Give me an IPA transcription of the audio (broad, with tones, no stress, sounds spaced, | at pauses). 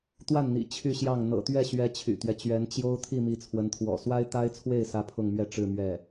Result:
t̪ w a˥˩ n n̪ ḭ˨˩ t͡ɕʰ y˥˧ ɕ j ɑ˥˩ ŋ n̪ ɤ̰˨˩ t̪ ɥ ɛ˥˩ ɕ ɥ ɛ˧˥ t͡ɕʰ y̰˨˩ t̪ ɥ ɛ˦ t͡ɕ ɥ ɛ˧˥ n t͡ɕ j o˥ ʊ̯ t̪ʰ i˥˩ m i˧˥ t͡sʰ w ə˧˥ n t̪ʰ w ɔ̰˨˩ s w a˥ ɪ̯ t̪ a˥ ɪ̯ t͡sʰ w e˥˩ ɪ̯ s ä˥ pʰ ʊ˥˧ ŋ m ɥ ɛ˥˧ ʈ͡ʂ ɻ̩˥˧ m ɥ ɛ˥˩